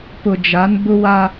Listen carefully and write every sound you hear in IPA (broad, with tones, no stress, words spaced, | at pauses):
pʊ˨d͡ʒa˨˦n bʊ˦wa˦